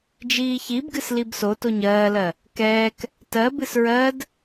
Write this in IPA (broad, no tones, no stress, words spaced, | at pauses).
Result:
d͡ʒiːçibɡɨs libso toɲɜːlɜ | kɛːk | tɜ bɨsɹɜd